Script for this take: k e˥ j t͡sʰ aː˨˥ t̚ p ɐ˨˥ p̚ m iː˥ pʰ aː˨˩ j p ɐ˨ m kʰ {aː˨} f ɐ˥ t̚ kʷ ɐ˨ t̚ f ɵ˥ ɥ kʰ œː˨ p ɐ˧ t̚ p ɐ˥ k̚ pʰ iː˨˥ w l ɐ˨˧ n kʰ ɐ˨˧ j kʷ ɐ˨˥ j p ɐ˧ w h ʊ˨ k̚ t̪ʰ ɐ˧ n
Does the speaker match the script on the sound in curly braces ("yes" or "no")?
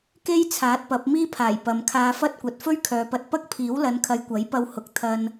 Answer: no